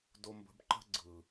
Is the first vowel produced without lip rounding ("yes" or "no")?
no